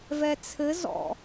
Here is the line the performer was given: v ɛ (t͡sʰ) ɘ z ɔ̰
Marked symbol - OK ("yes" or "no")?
yes